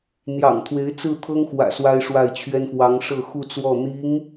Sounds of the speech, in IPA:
n̪ j ɑ̰˨˩ ŋ t̪ʰ w e˧˥ ɪ̯ t͡s ɹ̩˥˩ t̪ʰ ɤ˥ ŋ x w ä̰˨˩ s w a˥ ɪ̯ ʂ w a˥˩ ɪ̯ t͡ɕʰ ɥ ɛ˥ n f w ɑ˧˥ ŋ ʂ ɤ˥˧ x u˥˧ t͡s w ɔ˥˩ n̪ i˧˥ ŋ

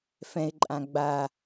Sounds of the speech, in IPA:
f ɛ̃ ɪ̯ ǃʼ ã ɡ͡b a

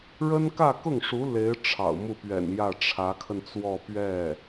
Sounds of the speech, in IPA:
ɻ ə˥ n k ä˥˧ k ʊ˥˩ ŋ ʂ u˧˥ l e˧˥ ɪ̯ ʈ͡ʂʰ ɑ̰˨˩ ʊ̯ m u˥˩ p ɥ ɛ̰˨˩ n j ä˥˩ ʈ͡ʂʰ ä˧˥ kʰ ə˧ n t͡s w ɔ˥˧ p ɥ ɛ˥˩

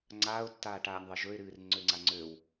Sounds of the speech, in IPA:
ŋ͡ǀ aː ʊ̯ tː aː ʈ aː nʲ ðˤ e ʒ ɵ ɪ̯ ɾ ɨː r ŋ͡ǀ ø ŋ͡ǀ a ŋ͡ǀ ø w

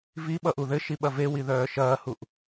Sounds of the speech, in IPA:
v i ɓ ʌ ʔ u ð ɘ ʃ i ɓ ɐ v e w i ð œː ʃ ɐː h u ʔ

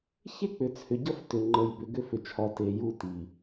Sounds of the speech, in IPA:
ç e˦ k͡p ʏ˨ t͡sʰ ʏ˨ ɟ ʌ˦ f t ʏ˨ ŋ͡ǃ ə˨ j b ʏ˨ ɡ ʏ˦ f ʏ˨ t͡ʃʰ ɒ˨ t e˨ j u˦ t i˨

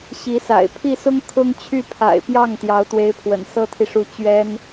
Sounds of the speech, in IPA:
ɕ i˧˥ s a̰˨˩ ɪ̯ pʰ i˥˩ s ʊ˥ ŋ kʰ ʊ˥ ŋ t͡ɕʰ y˥˩ pʰ a̰˨˩ ɪ̯ p j ɑ˥˩ ŋ t̪ j ɑ˧˥ ʊ̯ t̪ w e˧˥ ɪ̯ pʰ w ə̰˨˩ n s ɤ˥ t̪ʰ i˨ ʂ u˧˥ t͡ɕ ɥ ɛ˥ n

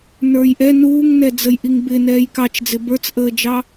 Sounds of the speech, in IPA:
n ə˞ j ʔ ɛ n uː ŋ n ɛ d͡z ə j ʔ i ŋ b ɪ n ɛː j k ɑ t͡ʃ d͡z ɪ b ə˞ t͡s ʔ əː d͡ʒ ɑ

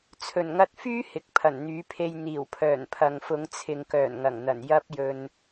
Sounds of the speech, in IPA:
t͡sʰ ɵ˨˩ n ŋ ɐ˧ t̚ f yː˥ h ɪ˨ k̚ pʰ ɐ˨˩ n n̪ yː˨˥ pʰ e˧ j n̪ iː˨˩ w pʰ œː˨˩ n pʰ ɐ˨ ŋ f ʊ˨˧ ŋ t͡sʰ ɪ˨ ŋ k œː˨˩ n ŋ ɐ˨˩ ŋ n̪ ɐ˨˩ n j ɐ˥ p̚ j ɵ˧ n

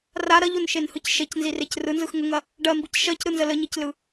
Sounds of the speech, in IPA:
r a ɾ ɐ ʎ o n ʃ e n h ɯ c ʃ e c n z i r e c r ɯ n z ɯ x ŋ ə ŋ ɐ | ɖ ɜ m b i c ʃ ɜ c ɾ ɯ n z ə l ə ɲ i c l ɯ

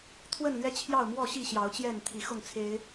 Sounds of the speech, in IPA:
t̪ʰ w ə˥˨ n l ɥ ɛ˦ t͡ɕʰ j ɑ˥˨ ʊ̯ m w ɔ˥˨ ɕ i˥˨ ɕ j ɑ˨˦ ʊ̯ t͡ɕ j ɛ˥˨ n t̪ʰ i˨˦ x ʊ˥˨ ŋ t͡sʰ e˨˦ ɪ̯

